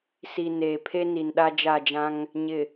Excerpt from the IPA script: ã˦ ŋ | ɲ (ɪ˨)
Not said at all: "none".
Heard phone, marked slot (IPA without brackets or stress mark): ɪ˨